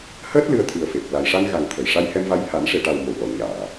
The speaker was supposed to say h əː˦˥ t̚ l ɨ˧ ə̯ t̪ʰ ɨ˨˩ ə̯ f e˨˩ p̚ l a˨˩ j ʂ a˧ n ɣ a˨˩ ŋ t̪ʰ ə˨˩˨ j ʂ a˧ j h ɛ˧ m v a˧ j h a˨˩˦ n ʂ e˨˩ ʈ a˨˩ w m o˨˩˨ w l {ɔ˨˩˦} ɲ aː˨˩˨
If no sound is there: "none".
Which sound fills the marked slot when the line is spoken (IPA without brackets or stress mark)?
ɔ˨˩˨